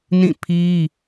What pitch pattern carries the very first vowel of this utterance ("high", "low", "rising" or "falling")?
falling